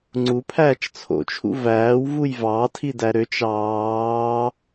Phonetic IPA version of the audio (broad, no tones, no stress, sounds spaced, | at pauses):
ŋ͡ǀ u pʰ æː t͡ʃ t͡sʰ o̰ t͡ʃʰ ṵ v æː w v u j v ɑ tʰ i d æ ɾ ø t͡ʃ ɑː